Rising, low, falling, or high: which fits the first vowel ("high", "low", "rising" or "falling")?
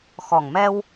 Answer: low